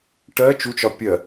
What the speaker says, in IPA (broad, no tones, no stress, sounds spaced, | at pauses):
ʈ ɜ t͡ʃ u t͡ʃ ɒ pʲ ɜ